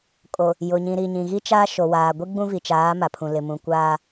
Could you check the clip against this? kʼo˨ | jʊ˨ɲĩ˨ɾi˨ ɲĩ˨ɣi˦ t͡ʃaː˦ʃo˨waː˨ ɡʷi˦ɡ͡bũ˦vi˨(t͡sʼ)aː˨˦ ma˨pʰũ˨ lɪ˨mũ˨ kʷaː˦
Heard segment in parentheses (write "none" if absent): t͡ʃ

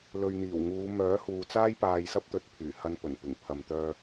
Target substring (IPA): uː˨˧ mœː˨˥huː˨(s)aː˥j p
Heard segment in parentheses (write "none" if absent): t͡s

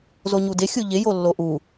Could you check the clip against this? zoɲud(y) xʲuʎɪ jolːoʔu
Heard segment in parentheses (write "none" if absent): ɪ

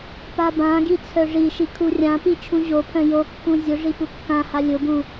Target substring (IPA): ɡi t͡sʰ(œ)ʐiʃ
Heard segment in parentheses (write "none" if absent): œ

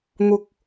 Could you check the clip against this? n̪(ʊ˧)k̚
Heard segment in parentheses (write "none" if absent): ʊ˧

